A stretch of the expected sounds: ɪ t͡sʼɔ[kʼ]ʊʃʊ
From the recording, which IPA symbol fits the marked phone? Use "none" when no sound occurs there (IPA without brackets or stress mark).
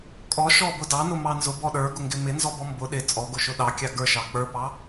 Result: ɡ